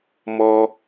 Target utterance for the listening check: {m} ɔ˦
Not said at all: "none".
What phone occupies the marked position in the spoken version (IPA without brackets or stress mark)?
m